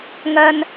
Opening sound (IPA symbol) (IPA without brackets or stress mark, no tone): ŋ